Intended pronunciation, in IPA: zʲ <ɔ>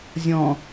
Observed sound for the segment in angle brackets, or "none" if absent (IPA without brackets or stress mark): ɔ̃